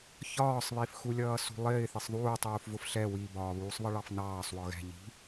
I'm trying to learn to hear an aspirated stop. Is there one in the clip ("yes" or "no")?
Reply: no